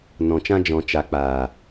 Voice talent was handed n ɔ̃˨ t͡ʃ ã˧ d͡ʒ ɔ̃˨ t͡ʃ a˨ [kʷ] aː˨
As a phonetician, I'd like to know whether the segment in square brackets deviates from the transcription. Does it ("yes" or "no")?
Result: yes